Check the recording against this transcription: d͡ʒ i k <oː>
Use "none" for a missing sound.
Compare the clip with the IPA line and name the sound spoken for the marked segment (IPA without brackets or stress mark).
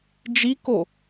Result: o